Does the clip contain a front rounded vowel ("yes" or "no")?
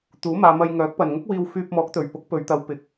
yes